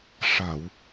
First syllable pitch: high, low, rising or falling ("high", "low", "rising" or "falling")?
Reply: low